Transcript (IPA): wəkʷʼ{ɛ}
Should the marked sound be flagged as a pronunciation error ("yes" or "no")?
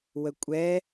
no